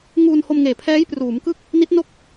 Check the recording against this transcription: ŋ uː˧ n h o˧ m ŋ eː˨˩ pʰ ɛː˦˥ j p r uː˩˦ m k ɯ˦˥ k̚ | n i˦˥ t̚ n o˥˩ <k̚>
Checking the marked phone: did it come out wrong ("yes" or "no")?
no